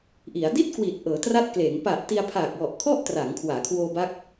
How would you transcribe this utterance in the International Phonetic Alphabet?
ʔ i˩˦ a̯ d i˥˩ t̚ k w i˨˩ t̚ ʔ ɤː˩˦ t r a˦˥ t̚ k l eː˩˦ ŋ p a˨˩ ʔ t i˧ a̯ pʰ aː˨˩ k̚ w ɔ˨˩ ʔ kʰ ɔ˥˩ ʔ t r a˩˦ ŋ kʰ w aː˩˦ kʰ w oː˧ b a˦˥ k̚

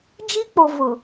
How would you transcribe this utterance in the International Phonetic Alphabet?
d͡ʒ i˦ k͡p o˨ v ʊ˨

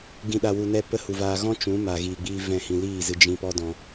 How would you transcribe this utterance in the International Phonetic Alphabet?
ɡ ĩ˨ ɗ a˨ w u˨ n ɛ˧ p ə˦ h u˨ v aː˧ ɣ ɔ̃˦ t͡ʃ ũ˨˦ m a˨ ɣ iː˨ ɡ͡b iː˧ v ɛ̃˦˨ h ĩ˧ l iː˦˨ z ɨ˧ d͡ʒ ĩ˦ p ɔ˦ d ɔ̃˧

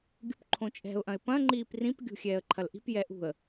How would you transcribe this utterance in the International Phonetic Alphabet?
ɡʲ ṳ p ǃʰ õ t͡ʃʼ ɛ̤ ʊ̯ ʔ ɐ̃ ɪ̯ p ɐ̃ ŋ͡ǃ iː p r ĩ p ɡʲ ṳ xʲ ɛː ə̯ ǃʰ ɐ l ʔ i̤ p j ɛ ʔ ṳ ə̯

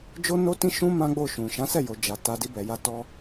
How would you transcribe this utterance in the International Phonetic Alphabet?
d͡ʒ o˦ n o˦ t ĩ˦ ʃ ũ˦ m ã˦ ɡ͡b o˦˨ ʃ ũ˨ ʃ ã˨˦ s ɛ˦˨ j o˨ d͡ʒ a˨ t a˧ d i˦ b ɛ˧ j a˦ t ɔ˦

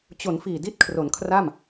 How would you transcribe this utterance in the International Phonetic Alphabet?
t͡ɕ o˩˦ n f iː˨˩ d i˦˥ t̚ kʰ r o˩˦ n kʰ r a˥˩ m

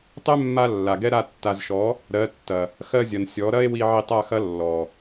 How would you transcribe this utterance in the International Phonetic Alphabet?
tˤ ɛ˦ mː a˧ lː a˨ ɡ ɛ˦ ɾ a˦˨ tː a˨ z ʃ ɔ˨˦ | ɾ ɜ˨˦ tː ɐ˨ | x ɜ˧ zʲ ɐ˨ n sʲ ɔ˨˦ ɾ ɐ˦ e̯ w i˧ ʕ i˧ tˤ a˦˨ x ɐ˦ lː ɔ˨

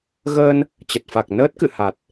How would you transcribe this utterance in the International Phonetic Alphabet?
ɣ əː˧ n | t͡ɕ ə˨˩ t̚ f a˨˩ k̚ n əː˦˥ t̚ k ɨ̰˧˨ h a˨˩ t̚

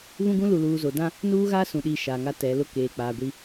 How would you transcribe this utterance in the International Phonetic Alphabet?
β ũ˦ ɡ ũ˦ l u˨ l uː˨ z o˨ d ã˦ | n uː˦ ɣ aː˦ s ũ˨ ɗ iː˨ ʃ aː˨ ŋ a˦ t ɛ˨˦ l ʊ˦ k eː˨ k͡p aː˨ ɡʷ i˦

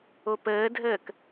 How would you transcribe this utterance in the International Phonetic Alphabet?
o p əː dʱ əː k

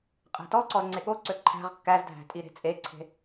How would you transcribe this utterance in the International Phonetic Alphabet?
qʼ æ̤ t ɔ ǀ ɔ z ŋ͡ǀ e ɠ o ǀ ø ǃʰ æ̤ ʁ kː æ z dʱ æ̤ tʼ i ɾ e̤ t͡sʼ e ǀʰ e̤

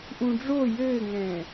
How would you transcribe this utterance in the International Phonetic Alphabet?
ʔ ũ ɖ͡ʐ o j ɘː ŋ ɛ̃ː

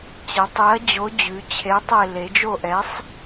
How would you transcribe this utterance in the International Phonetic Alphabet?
t͡ɕ ɛ˩˧ tˤ e˨˥ ɐ̯ d͡ʑ o˨˥ d͡ʑ ʉ˩˧ t͡ɕʰ e˨˥ tˤ e˦˨ l e˩˧ d͡ʒ o˦˨ ʔ ɛ˨˥ sˤ

